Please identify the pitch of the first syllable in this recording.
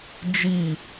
falling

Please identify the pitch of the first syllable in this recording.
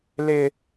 high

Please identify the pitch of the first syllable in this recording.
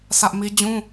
high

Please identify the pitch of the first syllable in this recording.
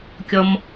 low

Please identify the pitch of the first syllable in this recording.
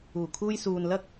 low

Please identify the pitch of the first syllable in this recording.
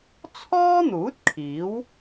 high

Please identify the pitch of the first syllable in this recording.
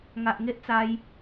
low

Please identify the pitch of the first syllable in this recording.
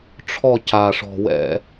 falling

